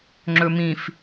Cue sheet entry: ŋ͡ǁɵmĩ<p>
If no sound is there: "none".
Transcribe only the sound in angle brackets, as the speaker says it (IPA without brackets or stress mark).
f